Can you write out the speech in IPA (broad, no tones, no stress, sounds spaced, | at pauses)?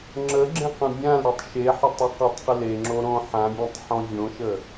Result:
ŋ͡ǁ ə ɡ͡ǁ ẽ q ə̃ bʲ ã l ɾ ø tˤ ʃ e ħ ə tˤ ø q o tˤ q ə l e ŋ͡ǁ o ɾ õ ħ ã bʲ ẽ tˤ ħ ɔ̃ vʲ õ ʃ ə